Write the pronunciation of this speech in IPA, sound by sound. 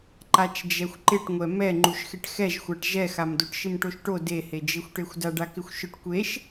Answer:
ǃat͡ʃd͡ʒɛxʷǃɪʈŋʷɛ mɛŋ͡ǃuʃxɪʈ xɛʒxʷaʈ ʒɛxamdoʈ ʃɪmʈoʃʈo dehed͡ʒexʷʈexʷ daɖakɪxʷʃʊʈ kʷeʃ

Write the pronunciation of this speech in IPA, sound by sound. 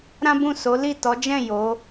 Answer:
ɾã˦bũ˦˨ so˨˦li˦˨tɔ˨˦ d͡ʒɛ̃˦˨ jo˨˦

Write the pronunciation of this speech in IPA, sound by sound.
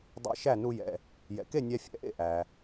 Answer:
dˤḛ˧ʃæ˥˩ nu˧jɛ̰˩ | jɛ̰˩ke˥˩ nʲæ˧fʲɛ̰˩˥ʔḛ˥˩ ʔæ˩

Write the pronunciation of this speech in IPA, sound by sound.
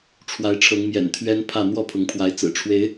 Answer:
ʈ͡ʂʰwa˨˦ɪ̯ʈ͡ʂʰɤ˨˦ŋmjɛ̰˨˩n t̪ʰɥɛ˦npʰä˥˨ n̪wɔ˥˨pʰʊ˨˦ŋpʰwa˨˦ɪ̯ t͡sɹ̩˨˩ʈ͡ʂʰwe˨˦ɪ̯

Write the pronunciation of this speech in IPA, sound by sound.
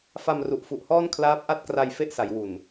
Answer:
fa˧m ru˨˩ʔfu˨˩ʔhɔː˥˩n kʰlaː˦˥p̚ʔa˥˩t̚kra˧j fe˥˩ʔsa˩˦j wu˨˩n

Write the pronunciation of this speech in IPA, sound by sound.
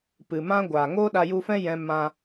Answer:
pɨ˨ mã˦ɡʷaː˨ ŋoː˦ɗa˧ju˧fɛ̃˦ jɛ̃˦ mã˧

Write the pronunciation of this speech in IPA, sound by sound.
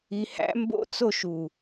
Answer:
i˧hæ̰˦˥ mbo̰˥˧t͡so˥˧ʃu˨˩

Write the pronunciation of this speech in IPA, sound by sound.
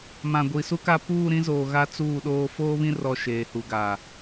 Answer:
mã˨ɡʷi˨su˦ka˦ puː˦˨ɾĩ˦zoː˨ ɣa˦t͡suː˦˨ɗoː˦ foː˦βĩ˦ rɔ˦˨ʃeː˨hu˨ɡa˨

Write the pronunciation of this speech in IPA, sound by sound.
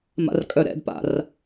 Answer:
ma̰rkʼœɾɛ̰dpa̰r

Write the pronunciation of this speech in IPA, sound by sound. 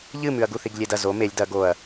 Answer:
ʎɨ mʉɐ̯ɡuθ iɡlʲedɐ zo melʲ dɐ ɡoɐ̯

